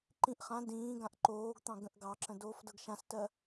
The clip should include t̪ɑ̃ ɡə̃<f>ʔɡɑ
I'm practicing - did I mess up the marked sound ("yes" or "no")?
yes